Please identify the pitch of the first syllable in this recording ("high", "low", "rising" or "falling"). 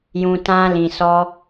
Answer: low